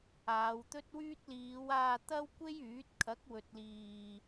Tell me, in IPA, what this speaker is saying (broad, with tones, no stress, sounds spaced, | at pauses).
aː˨˧ w t̪ ɵ˥ t̚ w yː˥ t̚ l iː˨˧ w aː˧ t̪ ɐ˥ w kʷ e˥ j yː˨˥ t̚ kʰ ɐ˨˥ k̚ w ɵ˨ t̚ l iː˨